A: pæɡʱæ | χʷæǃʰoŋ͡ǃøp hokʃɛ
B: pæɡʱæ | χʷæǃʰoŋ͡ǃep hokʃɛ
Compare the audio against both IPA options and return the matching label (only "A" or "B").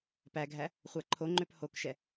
A